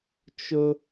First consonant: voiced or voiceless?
voiceless